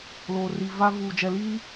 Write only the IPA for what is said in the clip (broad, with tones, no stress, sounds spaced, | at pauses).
l oː˨ r i˨ v a˦ v uː˨ d͡ʒ ɛ˨ l iː˦